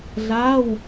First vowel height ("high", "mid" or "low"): low